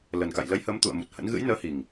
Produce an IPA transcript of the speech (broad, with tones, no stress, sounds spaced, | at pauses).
l ə˨˩ n k a̰˧˨ j l ə˨˦ j h əː˨˦ m t̪ ṵ˧˨ ə̯ m u˨˩ t̚ h ə̰˧˥ n ɣ ɨ̰˧˥ j n əː˨˦ h i˨˩ ŋ